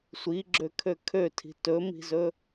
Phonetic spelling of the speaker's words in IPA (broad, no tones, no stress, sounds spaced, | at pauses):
sʷ i ɡ͡ǁ ø kʰ ø kʰ ø tʰ i̤ t ɵ m i̤ z ɵ